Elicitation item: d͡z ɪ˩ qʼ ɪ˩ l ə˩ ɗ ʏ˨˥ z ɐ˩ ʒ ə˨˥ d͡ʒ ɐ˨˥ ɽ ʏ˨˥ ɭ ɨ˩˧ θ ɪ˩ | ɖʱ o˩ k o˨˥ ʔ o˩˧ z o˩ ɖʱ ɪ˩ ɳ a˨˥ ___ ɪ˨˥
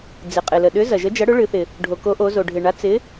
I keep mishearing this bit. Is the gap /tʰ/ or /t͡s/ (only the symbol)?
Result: t͡s